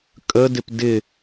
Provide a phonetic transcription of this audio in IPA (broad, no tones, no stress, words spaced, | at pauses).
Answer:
kʼədɪp dɪ